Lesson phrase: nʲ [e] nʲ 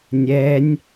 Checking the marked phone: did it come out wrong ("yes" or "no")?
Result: yes